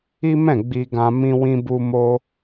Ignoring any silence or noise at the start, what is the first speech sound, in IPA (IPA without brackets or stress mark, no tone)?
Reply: i